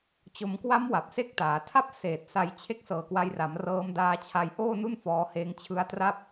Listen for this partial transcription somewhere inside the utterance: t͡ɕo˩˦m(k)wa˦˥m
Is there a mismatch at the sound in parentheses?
no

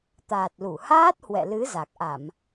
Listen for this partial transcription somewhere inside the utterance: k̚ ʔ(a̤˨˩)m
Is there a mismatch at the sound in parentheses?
yes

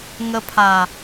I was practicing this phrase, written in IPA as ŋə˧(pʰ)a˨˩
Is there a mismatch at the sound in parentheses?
no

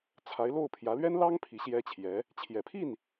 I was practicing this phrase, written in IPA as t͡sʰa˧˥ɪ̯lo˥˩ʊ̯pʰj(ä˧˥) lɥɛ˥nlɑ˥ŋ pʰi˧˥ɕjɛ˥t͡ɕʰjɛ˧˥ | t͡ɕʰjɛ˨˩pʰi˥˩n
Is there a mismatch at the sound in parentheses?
no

